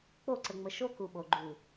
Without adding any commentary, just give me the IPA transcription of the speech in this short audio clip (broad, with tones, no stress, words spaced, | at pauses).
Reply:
k͡po˦˨ǀə˨ŋ͡mə˨ ʃo˦ku˨ɓo˨ ɡ͡ǃu˨